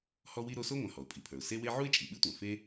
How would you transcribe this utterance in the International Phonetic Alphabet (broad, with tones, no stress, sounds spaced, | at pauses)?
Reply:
h ɔ˥ w i˥ ɾ o˥ s o˥ ŋʷ œ̃˩ h ɔ˩ ʊ̯ pʼ i˩ pʰ ə˞˩ ʊ̯ s e˥ w e˥ ʕ u˥ ɪ̯ t͡ʃʼ i˩ ɓ ɨ˥ tʷ œ̃˩ f e˥